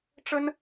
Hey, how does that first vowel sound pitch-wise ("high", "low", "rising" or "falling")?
high